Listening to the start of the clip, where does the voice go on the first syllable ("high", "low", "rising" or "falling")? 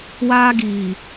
high